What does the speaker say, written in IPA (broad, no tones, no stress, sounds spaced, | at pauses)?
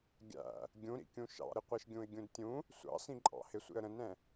ɡʲ æ̰ | ɡʲ ũ ɾ ḭ kʲ ũ ʃ ɑ̰ ɾ ɪ qʷ ɛ ʃ ɡʲ ũ ɪ̯ ɡʲ ũ d tʲ ũ | sʷ ɑ̰ s ĩ ǃʼ ɑ̰ h ɪ sʷ ḭ ə̯ ɾ ə̃ n ɾ ɛ̃